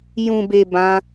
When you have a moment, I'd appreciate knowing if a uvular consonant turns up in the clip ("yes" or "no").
no